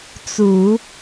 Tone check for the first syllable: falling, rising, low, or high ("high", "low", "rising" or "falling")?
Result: low